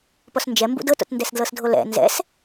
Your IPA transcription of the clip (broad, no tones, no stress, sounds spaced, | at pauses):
p ɔ s n d͡ʒ ɛ m b ṵ d ɤ t o̰ t n d ɛ s d l ɤ s dʱ o l ɛ̰ n z ɛ̰ s